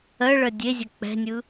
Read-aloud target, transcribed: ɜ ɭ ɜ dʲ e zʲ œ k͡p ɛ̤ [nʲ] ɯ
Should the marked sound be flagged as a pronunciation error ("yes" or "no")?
no